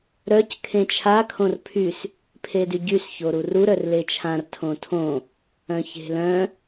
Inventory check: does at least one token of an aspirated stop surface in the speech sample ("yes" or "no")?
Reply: yes